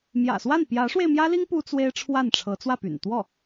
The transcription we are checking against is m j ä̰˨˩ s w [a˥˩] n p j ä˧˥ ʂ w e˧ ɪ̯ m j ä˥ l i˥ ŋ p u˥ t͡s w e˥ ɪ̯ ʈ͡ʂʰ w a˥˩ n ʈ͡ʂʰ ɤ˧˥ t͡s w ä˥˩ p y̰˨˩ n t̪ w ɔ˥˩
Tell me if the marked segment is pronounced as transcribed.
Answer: yes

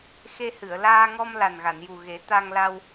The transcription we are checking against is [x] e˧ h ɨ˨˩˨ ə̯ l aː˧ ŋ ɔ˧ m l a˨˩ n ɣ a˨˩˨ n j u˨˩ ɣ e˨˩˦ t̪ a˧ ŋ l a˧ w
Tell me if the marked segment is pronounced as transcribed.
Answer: yes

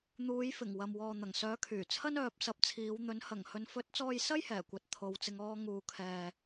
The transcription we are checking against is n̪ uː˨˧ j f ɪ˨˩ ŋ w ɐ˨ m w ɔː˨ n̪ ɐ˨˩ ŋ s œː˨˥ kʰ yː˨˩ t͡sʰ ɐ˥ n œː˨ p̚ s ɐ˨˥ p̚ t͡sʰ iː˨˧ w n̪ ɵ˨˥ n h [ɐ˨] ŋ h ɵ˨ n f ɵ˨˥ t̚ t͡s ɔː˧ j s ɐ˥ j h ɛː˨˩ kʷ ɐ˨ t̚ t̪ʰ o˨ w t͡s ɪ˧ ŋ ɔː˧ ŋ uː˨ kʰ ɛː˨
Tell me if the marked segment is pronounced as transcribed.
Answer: no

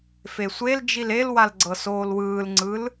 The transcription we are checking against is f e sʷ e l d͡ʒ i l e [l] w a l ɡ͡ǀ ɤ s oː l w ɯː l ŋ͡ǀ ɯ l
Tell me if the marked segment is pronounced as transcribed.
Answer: yes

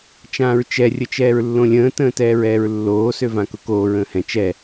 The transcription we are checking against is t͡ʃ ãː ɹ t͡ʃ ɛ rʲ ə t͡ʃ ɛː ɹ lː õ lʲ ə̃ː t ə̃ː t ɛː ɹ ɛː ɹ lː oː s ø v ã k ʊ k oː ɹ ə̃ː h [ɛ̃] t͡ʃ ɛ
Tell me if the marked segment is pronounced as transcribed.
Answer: yes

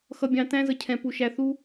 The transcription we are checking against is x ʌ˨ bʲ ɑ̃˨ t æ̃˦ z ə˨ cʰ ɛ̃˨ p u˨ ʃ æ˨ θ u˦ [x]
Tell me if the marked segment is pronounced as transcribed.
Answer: no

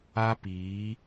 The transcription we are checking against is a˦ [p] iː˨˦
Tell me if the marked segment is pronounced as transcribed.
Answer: yes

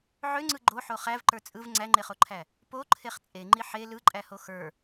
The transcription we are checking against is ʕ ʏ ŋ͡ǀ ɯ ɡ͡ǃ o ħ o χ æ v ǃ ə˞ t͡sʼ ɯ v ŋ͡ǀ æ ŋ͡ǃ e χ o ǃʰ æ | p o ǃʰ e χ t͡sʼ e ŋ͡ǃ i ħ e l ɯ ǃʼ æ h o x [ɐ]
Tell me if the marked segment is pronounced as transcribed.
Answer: no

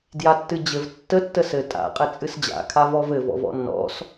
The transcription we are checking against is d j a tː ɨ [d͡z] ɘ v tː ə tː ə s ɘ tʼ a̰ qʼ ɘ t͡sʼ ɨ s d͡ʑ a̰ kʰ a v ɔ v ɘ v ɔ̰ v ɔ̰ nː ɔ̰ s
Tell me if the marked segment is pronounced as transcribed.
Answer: no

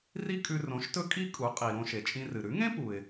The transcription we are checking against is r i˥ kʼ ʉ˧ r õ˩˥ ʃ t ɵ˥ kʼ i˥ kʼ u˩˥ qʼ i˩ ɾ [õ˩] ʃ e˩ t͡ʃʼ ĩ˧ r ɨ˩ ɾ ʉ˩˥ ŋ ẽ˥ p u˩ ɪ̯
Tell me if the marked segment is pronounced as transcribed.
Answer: no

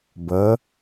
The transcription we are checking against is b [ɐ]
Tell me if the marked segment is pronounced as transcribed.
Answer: yes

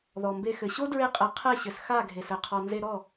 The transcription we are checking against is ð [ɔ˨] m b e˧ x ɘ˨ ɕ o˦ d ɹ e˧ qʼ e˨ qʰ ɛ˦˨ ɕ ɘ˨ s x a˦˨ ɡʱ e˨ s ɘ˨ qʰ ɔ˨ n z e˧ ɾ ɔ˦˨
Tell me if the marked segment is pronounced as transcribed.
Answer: yes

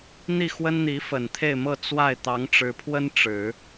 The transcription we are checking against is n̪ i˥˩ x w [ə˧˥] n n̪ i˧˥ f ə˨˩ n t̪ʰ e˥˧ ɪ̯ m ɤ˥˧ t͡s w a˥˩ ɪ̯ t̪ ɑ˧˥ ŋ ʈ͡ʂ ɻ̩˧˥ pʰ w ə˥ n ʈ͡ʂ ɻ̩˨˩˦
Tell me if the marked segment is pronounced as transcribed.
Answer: no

